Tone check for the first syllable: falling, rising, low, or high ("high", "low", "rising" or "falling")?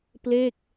falling